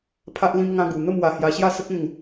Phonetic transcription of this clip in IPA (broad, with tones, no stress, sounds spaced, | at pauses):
pʰ a˦ ʔ l ĩ˦ m ŋ ã˦ ɡ u˧ n̪ ə˥˧ m w a˧ h j a˧ ɕ j a˥˧ s ə˦ k̚ ẽ˥˧ ŋ